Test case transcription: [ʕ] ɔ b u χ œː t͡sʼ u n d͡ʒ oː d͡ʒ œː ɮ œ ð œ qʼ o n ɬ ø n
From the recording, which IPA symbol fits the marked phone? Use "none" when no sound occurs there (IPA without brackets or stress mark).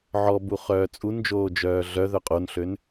ʕ